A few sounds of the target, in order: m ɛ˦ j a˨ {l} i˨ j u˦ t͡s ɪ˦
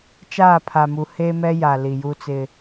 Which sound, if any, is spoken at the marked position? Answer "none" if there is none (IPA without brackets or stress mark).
l